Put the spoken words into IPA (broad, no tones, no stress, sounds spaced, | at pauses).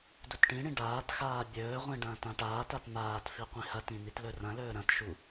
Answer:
d u t ʈ ĩ ɽ ĩ ɖ aː t x aː bʲ ɵː ʁʷ ĩ ɖ ɐ̃ː t ã ʈ aː t a t n aː t f i qʷ ĩ h ɐ t ĩ n i t l ɵ r ɐ̃ l ɵː ɾ ɐ̃ t ʃ u